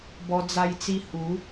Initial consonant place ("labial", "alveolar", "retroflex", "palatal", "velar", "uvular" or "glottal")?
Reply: labial